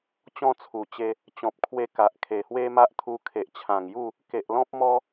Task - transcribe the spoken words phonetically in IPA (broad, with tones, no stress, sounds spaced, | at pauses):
t͡ɕ ɔ̃˥˧ t͡sʰ u˨˩ t͡ɕ e˧ | t͡ɕ ɔ̃˨ p̚ kʰ w e˧ k a˨ ʔ kʰ e˨˩ h w e˦ m a˦ ʔ t̪ʰ u˧ kʰ e˨ ʔ t͡ɕʰ ã˨˩ ŋ j u˥˧ | k e˨ ʔ l ɔ̃˦ p̚ m ɔ˦